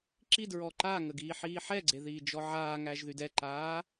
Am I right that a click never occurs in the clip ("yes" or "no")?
no